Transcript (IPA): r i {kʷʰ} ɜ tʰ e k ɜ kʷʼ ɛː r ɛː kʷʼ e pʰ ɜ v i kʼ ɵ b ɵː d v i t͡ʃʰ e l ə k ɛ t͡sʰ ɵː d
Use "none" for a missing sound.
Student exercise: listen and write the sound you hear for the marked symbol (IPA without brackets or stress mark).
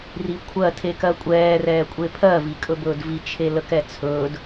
kʷʰ